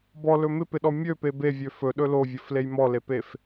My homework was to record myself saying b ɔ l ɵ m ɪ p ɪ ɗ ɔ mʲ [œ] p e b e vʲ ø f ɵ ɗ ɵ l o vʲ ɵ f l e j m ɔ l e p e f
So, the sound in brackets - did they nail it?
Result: no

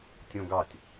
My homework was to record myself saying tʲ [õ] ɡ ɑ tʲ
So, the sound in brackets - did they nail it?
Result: yes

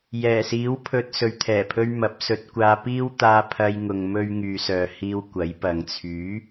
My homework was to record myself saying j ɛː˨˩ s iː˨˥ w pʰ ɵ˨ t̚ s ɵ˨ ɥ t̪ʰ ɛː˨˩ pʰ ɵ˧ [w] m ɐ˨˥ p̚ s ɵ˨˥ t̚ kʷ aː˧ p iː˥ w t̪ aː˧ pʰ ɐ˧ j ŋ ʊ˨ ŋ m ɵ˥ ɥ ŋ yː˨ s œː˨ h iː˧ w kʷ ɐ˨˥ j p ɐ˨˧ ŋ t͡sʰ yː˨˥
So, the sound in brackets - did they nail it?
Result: no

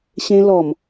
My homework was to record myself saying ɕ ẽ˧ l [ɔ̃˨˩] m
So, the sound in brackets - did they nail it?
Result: no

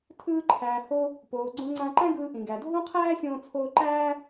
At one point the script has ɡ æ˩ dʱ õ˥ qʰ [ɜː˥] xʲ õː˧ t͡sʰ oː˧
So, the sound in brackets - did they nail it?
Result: no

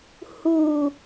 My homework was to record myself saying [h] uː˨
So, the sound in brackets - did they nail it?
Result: yes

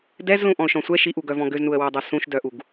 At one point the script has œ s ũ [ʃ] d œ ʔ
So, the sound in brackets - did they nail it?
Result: yes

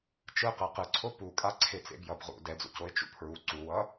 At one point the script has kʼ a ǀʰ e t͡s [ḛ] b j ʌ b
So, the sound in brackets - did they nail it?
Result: yes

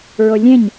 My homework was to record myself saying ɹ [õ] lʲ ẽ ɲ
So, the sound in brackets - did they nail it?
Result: no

